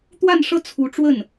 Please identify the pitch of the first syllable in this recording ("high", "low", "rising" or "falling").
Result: falling